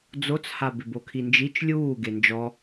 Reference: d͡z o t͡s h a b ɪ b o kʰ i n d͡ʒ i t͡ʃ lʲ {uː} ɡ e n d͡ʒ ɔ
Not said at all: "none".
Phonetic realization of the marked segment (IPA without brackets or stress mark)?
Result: uː